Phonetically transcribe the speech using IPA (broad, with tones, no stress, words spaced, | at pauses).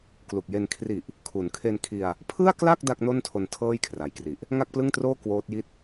klu˨˩k̚je˧n kʰri˨˩ʔ | kʰu˩˦nkʰe˧n kʰi˧a̯ | pʰɯ˥˩a̯kla˥˩k̚ da˥˩k̚no˥˩ntʰo˧n tʰɤː˥˩jkʰra˩˦jkri˨˩ʔ | ŋa˥˩k̚plɯ˥˩ŋtroː˥˩ kwoː˦˥t̚ji˥˩t̚